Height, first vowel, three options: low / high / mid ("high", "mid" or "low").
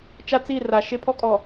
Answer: low